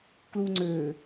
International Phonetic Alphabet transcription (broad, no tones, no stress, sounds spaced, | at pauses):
k l uː ŋ͡ǀ øː